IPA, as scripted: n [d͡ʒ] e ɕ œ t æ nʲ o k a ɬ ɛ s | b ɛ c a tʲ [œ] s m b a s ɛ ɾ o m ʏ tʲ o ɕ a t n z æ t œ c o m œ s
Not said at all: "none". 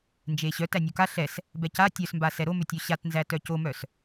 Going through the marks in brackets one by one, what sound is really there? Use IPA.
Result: d͡ʒ, œ

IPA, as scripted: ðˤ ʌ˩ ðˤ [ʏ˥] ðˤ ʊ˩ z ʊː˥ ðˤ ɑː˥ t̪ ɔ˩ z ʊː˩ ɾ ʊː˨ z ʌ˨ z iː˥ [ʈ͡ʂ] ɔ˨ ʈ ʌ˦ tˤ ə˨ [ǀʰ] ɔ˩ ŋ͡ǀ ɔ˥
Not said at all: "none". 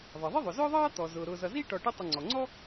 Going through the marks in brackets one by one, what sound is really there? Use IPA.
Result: ɪ˥, ʈ, ŋ͡ǀ

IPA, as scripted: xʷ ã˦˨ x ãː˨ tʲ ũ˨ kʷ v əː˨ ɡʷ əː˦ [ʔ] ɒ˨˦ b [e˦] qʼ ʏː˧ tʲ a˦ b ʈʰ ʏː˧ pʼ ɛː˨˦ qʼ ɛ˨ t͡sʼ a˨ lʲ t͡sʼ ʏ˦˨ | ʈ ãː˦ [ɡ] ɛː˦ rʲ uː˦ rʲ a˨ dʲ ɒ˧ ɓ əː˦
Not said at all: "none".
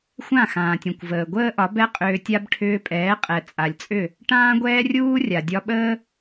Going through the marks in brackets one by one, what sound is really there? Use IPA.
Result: ʔ, ɛ˦, ɡʷ

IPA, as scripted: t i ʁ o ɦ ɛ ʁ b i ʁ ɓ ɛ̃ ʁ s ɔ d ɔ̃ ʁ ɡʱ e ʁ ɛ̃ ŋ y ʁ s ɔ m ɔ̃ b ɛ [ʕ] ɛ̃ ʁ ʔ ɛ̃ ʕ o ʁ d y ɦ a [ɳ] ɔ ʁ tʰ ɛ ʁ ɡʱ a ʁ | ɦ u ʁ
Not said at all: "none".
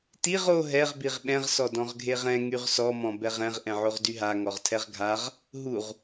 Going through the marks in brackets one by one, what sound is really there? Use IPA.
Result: ʁ, ŋ

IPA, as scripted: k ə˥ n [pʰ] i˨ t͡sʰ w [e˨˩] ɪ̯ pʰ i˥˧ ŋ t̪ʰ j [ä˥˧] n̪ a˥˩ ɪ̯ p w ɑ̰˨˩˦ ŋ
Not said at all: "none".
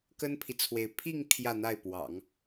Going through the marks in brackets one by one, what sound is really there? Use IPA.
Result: pʰ, e˧˥, ä˥˧

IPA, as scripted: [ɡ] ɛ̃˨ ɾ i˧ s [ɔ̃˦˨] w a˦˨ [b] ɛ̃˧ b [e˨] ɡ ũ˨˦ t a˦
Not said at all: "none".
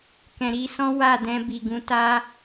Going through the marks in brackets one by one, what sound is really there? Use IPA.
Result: k, ɔ̃˦, d, i˨

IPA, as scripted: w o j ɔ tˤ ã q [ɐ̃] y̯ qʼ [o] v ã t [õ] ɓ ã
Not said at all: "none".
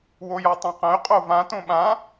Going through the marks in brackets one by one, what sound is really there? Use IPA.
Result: ɐ̃, o, õ

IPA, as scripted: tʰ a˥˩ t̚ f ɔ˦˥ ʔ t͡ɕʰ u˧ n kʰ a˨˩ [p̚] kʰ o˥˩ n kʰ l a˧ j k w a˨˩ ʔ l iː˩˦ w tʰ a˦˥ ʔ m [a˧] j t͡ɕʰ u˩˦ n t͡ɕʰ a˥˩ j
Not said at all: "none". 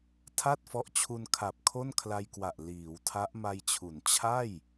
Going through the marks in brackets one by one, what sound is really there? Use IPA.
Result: p̚, a˧

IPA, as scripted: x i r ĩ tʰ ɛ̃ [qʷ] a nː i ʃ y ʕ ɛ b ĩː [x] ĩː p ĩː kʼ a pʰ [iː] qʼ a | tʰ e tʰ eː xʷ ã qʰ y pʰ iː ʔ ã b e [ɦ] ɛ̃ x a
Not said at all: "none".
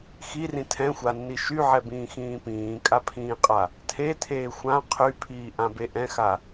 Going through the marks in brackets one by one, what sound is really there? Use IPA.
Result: xʷ, x, ĩː, ʔ

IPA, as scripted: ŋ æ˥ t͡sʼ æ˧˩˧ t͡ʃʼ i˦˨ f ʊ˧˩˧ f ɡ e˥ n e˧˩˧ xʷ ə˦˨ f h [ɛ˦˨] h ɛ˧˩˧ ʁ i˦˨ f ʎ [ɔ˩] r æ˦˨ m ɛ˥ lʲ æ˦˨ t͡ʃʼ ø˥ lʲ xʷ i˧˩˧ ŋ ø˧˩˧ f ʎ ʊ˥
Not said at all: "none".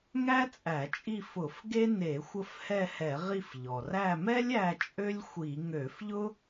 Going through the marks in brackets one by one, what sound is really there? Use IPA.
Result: ɛ˦˨, ɔ˩

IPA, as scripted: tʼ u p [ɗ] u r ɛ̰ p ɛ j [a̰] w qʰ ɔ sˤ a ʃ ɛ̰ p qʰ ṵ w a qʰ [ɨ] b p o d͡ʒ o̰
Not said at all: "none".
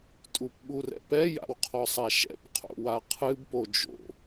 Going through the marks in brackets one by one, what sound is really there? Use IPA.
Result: ɓ, a̰, ɨ

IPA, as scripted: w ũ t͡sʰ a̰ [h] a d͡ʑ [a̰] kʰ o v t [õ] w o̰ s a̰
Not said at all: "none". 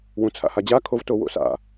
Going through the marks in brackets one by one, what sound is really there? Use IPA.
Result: h, a, o

